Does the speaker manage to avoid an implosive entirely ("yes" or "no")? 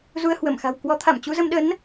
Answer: no